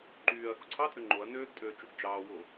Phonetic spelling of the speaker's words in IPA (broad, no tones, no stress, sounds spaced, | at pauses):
ǃ yː ɐ̯ x u ǀʰ ɑ tʼ ø ŋ͡ǃ o ɐ̯ n øː ɡ tʼ øː t͡ʃ u ɡ d͡ʒ ɑː w o